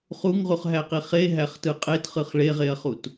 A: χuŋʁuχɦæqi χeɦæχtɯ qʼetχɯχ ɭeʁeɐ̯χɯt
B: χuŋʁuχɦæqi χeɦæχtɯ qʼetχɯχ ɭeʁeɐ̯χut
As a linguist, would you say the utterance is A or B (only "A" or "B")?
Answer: B